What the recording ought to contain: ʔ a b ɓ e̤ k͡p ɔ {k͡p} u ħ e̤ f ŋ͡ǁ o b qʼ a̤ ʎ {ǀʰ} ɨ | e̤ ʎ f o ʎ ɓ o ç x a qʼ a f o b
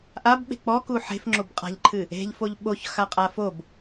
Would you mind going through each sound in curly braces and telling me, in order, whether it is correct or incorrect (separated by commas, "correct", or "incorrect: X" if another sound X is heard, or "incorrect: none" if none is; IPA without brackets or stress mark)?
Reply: incorrect: k, incorrect: ǃʰ